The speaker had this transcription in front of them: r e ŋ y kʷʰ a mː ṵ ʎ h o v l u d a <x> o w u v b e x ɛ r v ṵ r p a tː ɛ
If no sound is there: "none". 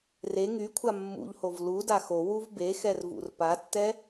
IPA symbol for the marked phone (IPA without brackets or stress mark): x